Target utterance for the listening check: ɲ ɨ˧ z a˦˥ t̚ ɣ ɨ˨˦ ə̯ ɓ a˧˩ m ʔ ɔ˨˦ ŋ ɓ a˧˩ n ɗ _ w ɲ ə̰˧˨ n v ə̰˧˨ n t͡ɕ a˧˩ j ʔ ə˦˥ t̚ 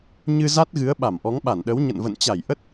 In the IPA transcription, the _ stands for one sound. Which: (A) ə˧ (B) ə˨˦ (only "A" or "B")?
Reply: B